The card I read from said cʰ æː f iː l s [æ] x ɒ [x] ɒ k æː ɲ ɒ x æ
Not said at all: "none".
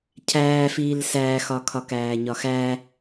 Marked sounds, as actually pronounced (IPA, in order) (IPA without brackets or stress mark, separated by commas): æː, kʰ